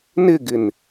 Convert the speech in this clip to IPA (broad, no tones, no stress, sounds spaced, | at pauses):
n ɪ ɡ ɪ n